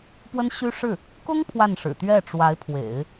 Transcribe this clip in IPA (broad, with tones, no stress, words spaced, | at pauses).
pwə˥nɕy˥ʂɻ̩˥˩ | kʊ˥ŋ pʰwa˥˩nʂɻ̩˨˩ t̪ɥɛ˥˩ʈ͡ʂwa˧˥ɪ̯pʰwḛ˨˩˦ɪ̯